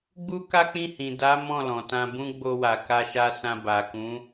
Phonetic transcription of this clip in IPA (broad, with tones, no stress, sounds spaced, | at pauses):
ɡ͡b u˦ k a˦ k͡p ĩ˦˨ h ĩ˨ d a˨˦ m ɔ̃˦˨ l ɔ̃˨ t ã˧ b ũ˦ ɡ͡b o˧ w a˨ k a˧ ʃ a˧ s ã˧ b a˨ k ũ˨˦